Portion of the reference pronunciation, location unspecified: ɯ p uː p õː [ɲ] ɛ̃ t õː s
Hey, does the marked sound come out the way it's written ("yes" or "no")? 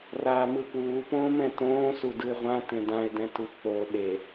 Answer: no